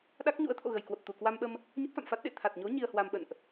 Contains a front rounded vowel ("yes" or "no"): no